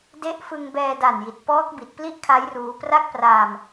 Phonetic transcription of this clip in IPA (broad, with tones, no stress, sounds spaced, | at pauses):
d e˥˩ ʔ f ɯ˧ ŋ b ɛː˧ d a˨˩ n j i˨˩ t̚ p ɔː˦˥ k̚ b i˨˩ t̚ p l i˥˩ ʔ kʰ a˦˥ j r uː˦˥ p r a˥˩ k̚ p r aː˧ m